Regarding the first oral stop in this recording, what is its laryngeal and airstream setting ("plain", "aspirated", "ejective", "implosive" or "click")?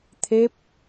aspirated